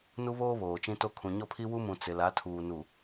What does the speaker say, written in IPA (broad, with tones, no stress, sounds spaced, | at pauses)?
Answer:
n u˦ β oː˦ β oː˨ t͡ʃ ĩ˦ t o˦ kʰ ũ˨ ɲ ɔ˦ pʰ i˦ w u˦ m ũ˨ t͡s ɪ˨ l a˨˦ tʰ uː˨ n u˨